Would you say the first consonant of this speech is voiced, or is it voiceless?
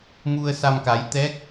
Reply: voiced